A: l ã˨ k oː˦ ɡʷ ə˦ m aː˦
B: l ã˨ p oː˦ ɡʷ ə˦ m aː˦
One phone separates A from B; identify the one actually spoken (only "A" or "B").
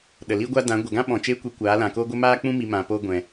A